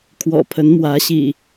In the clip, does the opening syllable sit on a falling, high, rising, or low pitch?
low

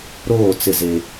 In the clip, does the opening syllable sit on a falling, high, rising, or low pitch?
falling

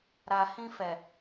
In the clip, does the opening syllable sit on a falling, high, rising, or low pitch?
low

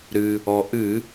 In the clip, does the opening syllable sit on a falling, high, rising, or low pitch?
low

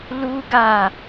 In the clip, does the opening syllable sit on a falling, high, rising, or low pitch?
high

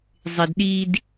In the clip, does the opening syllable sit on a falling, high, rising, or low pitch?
high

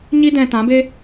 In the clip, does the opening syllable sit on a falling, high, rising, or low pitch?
high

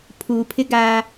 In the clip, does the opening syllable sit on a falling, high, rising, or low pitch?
low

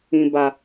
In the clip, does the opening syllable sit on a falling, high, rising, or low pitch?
low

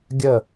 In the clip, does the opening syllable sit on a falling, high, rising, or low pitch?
falling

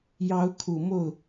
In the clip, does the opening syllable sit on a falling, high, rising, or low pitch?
rising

